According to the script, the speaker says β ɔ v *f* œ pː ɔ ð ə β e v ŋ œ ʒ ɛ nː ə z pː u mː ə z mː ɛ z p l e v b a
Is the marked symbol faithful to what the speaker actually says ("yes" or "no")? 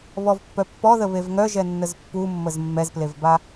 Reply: no